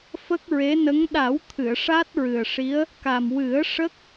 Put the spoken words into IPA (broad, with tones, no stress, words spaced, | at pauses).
fə˦˥k̚ɹe˧˥nə˧˥ŋ ɗa˨˩˦wt̪ʰɨ˨˩˨ə̯ ʂa˦˥t̚ɹɨ˨˩ə̯ʂi˧˥ə̯ | ka˨˩mwɨ˨˩˦ə̯ʂə˦˥k̚